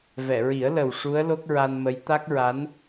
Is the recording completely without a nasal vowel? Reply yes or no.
yes